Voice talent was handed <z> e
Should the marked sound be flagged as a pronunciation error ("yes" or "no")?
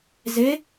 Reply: no